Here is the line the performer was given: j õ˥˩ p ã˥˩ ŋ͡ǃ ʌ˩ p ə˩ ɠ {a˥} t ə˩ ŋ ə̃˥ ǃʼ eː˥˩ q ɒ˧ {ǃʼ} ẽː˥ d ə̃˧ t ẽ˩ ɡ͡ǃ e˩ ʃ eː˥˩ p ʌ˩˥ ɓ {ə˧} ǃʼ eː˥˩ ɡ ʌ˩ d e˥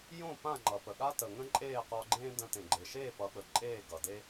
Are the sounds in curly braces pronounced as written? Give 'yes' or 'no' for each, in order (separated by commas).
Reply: yes, no, no